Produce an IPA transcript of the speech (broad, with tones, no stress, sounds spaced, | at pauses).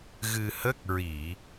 ɣ ɨ˧ h ə˦˥ k̚ ɹ i˨˩˨